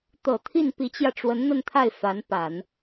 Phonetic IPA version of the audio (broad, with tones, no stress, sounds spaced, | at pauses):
t̪ ɤ˨˩ t̪ʰ i˥˩ n p i˧˥ t͡ɕ j ä˧ ʈ͡ʂ w ə˧˥ n n̪ ə˥˧ n t̪ʰ a˥˩ ɪ̯ f a˧˥ n p a˨˩˦ n